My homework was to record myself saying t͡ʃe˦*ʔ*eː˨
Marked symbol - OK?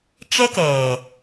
no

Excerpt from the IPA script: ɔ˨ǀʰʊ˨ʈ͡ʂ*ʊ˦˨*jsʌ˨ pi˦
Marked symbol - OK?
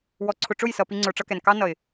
yes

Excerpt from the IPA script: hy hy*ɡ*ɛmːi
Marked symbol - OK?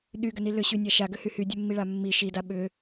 no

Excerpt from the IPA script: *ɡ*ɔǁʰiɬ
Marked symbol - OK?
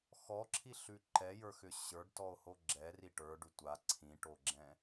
no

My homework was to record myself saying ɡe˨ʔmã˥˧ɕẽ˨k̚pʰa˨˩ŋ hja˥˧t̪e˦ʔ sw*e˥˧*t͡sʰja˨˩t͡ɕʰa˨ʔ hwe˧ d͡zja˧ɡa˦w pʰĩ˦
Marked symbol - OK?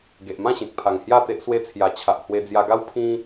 no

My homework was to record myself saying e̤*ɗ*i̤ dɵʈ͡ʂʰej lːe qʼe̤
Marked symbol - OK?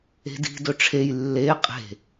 no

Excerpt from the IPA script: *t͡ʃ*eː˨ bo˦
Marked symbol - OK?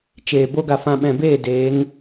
yes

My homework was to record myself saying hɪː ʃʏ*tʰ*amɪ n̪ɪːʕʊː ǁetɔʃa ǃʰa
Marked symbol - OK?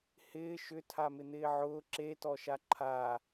yes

